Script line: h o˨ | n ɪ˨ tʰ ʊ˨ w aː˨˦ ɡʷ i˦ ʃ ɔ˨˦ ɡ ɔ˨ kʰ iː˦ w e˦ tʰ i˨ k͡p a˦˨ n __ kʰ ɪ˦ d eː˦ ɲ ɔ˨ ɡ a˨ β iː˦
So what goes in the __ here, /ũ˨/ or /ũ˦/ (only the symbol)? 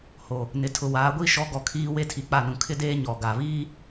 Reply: ũ˨